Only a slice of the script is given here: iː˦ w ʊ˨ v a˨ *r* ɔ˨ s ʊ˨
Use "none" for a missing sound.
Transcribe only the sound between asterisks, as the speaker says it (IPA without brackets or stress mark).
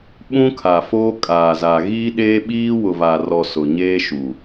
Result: r